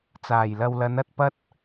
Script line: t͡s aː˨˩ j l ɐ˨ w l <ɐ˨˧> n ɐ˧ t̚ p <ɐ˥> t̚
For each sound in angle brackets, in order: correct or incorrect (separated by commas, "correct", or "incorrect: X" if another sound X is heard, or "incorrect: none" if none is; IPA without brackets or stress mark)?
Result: correct, correct